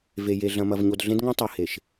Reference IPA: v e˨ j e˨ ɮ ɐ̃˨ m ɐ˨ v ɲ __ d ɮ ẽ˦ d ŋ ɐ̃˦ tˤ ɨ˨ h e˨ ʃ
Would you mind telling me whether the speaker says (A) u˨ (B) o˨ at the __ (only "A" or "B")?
B